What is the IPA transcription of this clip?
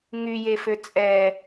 ŋ y j e f ø t͡sʼ ɛ

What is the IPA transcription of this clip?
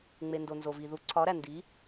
ŋ͡m e˨ n d o˨ n z o˨ v i˨ ð u˨˥ ǀʰ ɒ˨˥ ɾ æ˨ n d i˨˥

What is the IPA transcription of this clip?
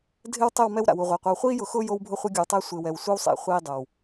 dʱ ɪ˦ w tˤ ɪ˦˨ w m ɛ˦ w ɾ a̰˨ w u˨ ʁʷ e˨ qʷ e˨ w χʷ iː˦ j ʊ˨ x ʊː˦ j o˦ w bʱ ʊ˦ χʷ ɪ˦ ɡʲ o˨ w tˤ ɛ˦ sʷ ɪː˨ w ɛ˨ w sʷ i˦ w sˤ ḛ˨ χʷ iː˦ dˤ o˨ w

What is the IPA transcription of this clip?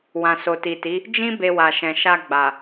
w ã˨ s o˨ t i˨ t i˨˦ | d͡ʒ ĩ˦ b e˧ w a˨ ʃ ɛ̃˨ ʃ a˧ ɡ͡b a˨

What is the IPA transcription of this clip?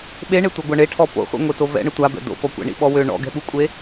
ɓ e ɳ e tʷ œ ɡʷ a ɳ e ʈʰ ɔ p o̰ χʷ ḭ ŋʷ e t o v ɛ̰ ɳ ə tʷ a b ɛ̰ d o̰ p ɔ kʷ ɛ̰ ɳ ḭ ɓ ɔ w ø ɳ ɔ̰ ɡ ɛ̤ ɓ u kʷʼ e

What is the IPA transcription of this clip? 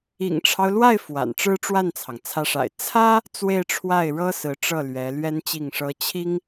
ḭ˨˩ ŋ ʈ͡ʂʰ ɑ˦ ʊ̯ l w a˥˩ ɪ̯ f w a̰˨˩ n ʈ͡ʂ ɻ̩˥ ʈ͡ʂ w a˥˩ n t͡sʰ ɑ˩ ŋ t͡sʰ ä˧˥ ʂ a̰˨˩ ɪ̯ t͡sʰ ä˥ | t͡s w e˥˧ ɪ̯ ʈ͡ʂʰ w a˥˩ ɪ̯ ɻ ɤ˥ s ɹ̩˧˥ ʈ͡ʂ ɤ˥˩ l ɥ ɛ˧˥ l ɥ ɛ˥ n t͡ɕ i˥˩ ŋ ʂ ɤ˥ t͡ɕʰ i˥ ŋ

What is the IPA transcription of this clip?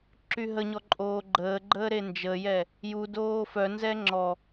ǁ y ɦ ə ɲ ɔ ǃʼ oː ɡ͡ǃ əː ɡ͡ǃ əː ɾ e n d͡ʒ ə j ɛ | j u d oː f œ n z ɛ ŋ͡ǁ ɔ

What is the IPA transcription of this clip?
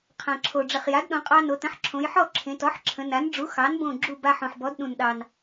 qʰ ã˩ ǁʰ o˩ ɖ͡ʐ ə˩ χ j a˩˥ d ɗ õ˩˧ qʼ ɑ˧ n o˩˧ t ə̃˩˥ ħ ǁʰ õ˩˧ j ħ ɔ˥˨ ǁʰ ẽ˩˧ t ɔ˩˥ ħ ǁʰ ə̃˩˧ n a˩˥ n ɖ͡ʐ u˩˥ x ɑ˩˥ n b õ˧˩ ɡ͡ǁ u˧˩ b a˧ ħ õ˩ ħ b ɔ˩˥ d ɗ ũ˩ n ɗ ɑ˩ n

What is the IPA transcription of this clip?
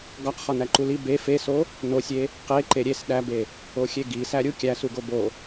ɡ ɒ q χ ɒ n æ ǃ u l i b e f e s o | n o sʲ e | q e ǃ e ɾʲ e s ɗ æ b e | o xʲ e ɡ i s æ ɾʲ u kʲ æ s u ɡ o b o

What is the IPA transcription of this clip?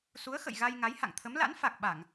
s u˨˦ ə̯ x ə̰˧˨ j ɣ a˧ j ŋ a˨˦ j h a̰˧˨ ŋ t̪ʰ ə˨˦ m l a̰˧˥ n f a˨˩ k̚ ɓ a˧˩˨ ŋ

